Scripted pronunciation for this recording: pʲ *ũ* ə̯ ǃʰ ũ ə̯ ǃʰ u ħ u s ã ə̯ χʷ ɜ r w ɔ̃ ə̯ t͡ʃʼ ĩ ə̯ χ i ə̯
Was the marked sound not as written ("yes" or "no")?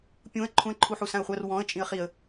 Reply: no